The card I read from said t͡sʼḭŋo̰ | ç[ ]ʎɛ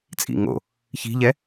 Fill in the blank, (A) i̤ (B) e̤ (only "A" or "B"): A